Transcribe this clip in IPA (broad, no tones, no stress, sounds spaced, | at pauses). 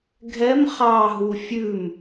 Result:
ɡʱ ɛ m χ ɑ ɦ u fʲ ʉ m